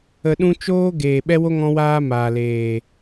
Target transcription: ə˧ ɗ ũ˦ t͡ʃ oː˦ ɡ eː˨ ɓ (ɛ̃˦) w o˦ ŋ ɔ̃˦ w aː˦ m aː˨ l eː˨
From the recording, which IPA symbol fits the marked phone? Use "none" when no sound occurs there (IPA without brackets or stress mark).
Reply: ɛ˦